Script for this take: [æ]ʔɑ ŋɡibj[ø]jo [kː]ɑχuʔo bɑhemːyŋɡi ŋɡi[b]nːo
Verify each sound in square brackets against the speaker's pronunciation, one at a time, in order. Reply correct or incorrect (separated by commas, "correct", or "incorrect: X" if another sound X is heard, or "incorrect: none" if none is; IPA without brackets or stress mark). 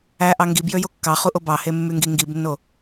correct, correct, correct, correct